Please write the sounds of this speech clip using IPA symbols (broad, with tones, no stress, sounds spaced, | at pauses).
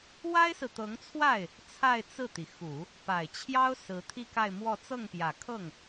w a˥ ɪ̯ s ɹ̩˨ t̪ ɤ˧˥ ŋ t͡sʰ w a˥˩ ɪ̯ | t͡sʰ a˥˧ ɪ̯ t͡s ɹ̩˥˩ t̪ i˩ x u˨˩˦ | p a˨˩ ɪ̯ t͡ɕʰ j ɑ˥ ʊ̯ s ɹ̩˧˥ t̪ʰ i˥˧ k a˥˧ ɪ̯ m w ɔ˥˧ t͡s ɤ˥˩ ŋ p j ä˨˩ kʰ ɤ˥˩ ŋ